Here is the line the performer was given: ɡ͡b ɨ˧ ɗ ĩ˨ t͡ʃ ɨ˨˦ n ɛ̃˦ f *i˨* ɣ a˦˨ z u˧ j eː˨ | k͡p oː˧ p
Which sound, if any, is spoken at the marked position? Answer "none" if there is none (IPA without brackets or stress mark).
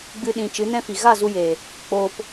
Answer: i˨